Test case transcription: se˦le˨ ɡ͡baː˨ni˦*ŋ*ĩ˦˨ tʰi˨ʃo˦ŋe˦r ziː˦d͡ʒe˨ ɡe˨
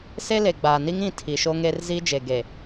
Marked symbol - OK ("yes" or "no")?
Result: yes